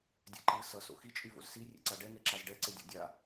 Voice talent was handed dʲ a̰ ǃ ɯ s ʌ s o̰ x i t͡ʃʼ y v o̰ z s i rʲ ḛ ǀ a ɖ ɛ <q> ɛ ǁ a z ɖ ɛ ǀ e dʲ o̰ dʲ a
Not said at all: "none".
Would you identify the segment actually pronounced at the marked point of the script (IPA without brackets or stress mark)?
ŋ